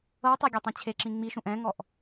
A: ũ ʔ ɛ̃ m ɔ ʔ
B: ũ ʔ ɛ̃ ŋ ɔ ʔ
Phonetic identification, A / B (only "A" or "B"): B